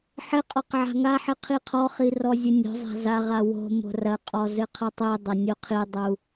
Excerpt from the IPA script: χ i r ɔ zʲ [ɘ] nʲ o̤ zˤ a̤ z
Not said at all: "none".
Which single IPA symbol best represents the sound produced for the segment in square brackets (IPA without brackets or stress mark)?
ɘ